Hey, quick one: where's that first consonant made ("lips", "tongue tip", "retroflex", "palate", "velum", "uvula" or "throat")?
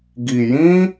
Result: velum